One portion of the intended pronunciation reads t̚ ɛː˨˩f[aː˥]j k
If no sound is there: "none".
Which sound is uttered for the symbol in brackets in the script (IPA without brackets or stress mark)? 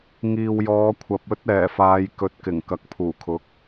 aː˨˧